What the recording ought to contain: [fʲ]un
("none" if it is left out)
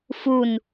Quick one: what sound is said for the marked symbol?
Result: f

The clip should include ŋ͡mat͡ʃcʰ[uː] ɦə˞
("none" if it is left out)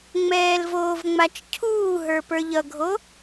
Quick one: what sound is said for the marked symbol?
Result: uː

